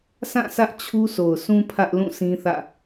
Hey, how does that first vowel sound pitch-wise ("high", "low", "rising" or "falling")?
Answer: falling